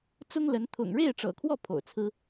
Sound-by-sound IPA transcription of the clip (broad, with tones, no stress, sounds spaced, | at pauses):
t͡s ʊ˥ ŋ l ə˧˥ n t̪ʰ ʊ̰˨˩ ŋ ɻ e˥˩ ɪ̯ ʈ͡ʂ ɤ̰˨˩ kʰ w ɔ˥˩ pʰ o̰˨˩ ʊ̯ t͡sʰ ɹ̩˥